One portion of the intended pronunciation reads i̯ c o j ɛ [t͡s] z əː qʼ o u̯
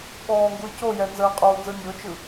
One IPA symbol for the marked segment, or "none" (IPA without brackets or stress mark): n